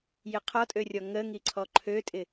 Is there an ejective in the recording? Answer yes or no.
yes